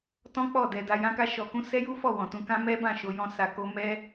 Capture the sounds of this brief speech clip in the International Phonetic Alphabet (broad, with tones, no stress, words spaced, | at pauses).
tɔ̃˦k͡pɔ˦˨dɛ˧da˧ jã˦ka˦ʃɔ˧kũ˦ sɛ˦ju˦fɔ˦˨ wɔ̃˨tũ˧kã˦ mɛ˦bã˦˨ʃo˧ jɔ̃˦sa˧ko˦ mɛ˦